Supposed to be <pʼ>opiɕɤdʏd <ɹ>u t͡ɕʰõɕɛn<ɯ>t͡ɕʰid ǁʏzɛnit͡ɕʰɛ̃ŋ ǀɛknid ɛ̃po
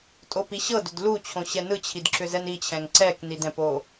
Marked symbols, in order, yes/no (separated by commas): no, no, yes